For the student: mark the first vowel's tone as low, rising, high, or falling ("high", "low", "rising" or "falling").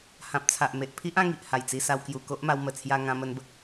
low